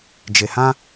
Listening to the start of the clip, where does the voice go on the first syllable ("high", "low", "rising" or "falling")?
low